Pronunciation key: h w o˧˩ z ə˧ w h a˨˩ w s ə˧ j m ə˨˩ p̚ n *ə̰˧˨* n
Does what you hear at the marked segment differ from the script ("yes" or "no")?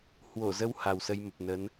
yes